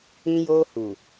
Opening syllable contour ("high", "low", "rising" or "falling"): high